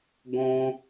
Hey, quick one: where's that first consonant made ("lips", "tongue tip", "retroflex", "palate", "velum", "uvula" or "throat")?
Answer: velum